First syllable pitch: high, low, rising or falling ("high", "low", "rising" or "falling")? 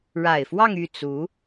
low